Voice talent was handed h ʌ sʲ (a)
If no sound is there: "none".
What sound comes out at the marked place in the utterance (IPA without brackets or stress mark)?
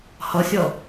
ʌ